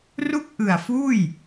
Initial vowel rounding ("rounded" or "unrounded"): rounded